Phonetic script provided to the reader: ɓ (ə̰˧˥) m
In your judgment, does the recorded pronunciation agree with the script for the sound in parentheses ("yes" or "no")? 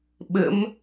yes